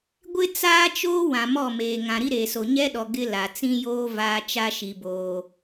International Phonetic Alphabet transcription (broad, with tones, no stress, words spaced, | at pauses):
ɡʷɪ˦t͡saː˦t͡ʃoː˦ wã˨mɔ˦˨meː˨ ŋã˨ɾi˦ɾeː˨so˨ ɲɛ˦ɗɔ˨ ɡɪ˦ la˨ t͡sĩ˦joː˦ vaː˦ t͡ʃa˦ʃi˨boː˨